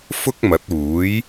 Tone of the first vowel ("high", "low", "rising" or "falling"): high